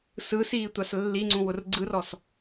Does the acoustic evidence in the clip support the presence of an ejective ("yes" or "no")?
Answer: no